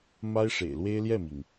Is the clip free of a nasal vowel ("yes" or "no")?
yes